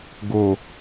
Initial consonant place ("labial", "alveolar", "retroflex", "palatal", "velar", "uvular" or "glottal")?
velar